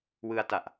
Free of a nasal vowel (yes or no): yes